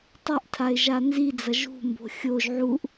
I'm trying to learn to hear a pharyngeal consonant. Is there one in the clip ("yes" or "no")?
yes